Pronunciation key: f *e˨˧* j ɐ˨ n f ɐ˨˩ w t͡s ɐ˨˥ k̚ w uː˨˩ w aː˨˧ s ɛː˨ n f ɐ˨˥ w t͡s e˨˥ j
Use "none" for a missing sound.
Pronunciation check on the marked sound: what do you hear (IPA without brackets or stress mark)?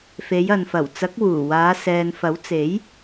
e˨˧